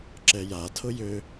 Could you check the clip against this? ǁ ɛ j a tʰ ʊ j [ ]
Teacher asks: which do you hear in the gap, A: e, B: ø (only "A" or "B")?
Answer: B